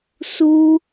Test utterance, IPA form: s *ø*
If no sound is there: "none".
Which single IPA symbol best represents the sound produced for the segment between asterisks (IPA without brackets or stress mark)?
u